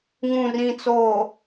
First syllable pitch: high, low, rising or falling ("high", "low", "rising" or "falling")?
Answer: low